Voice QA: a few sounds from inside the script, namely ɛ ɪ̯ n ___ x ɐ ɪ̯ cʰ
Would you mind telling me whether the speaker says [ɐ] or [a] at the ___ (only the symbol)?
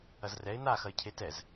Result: a